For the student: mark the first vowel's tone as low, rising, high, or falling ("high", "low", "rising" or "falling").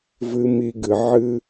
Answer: low